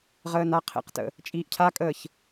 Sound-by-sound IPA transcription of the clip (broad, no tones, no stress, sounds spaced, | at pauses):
ʁ əː n a qʰ ḛ q t ə̰ | t͡ʃʼ iː ʔ cʰ a kʼ əː ç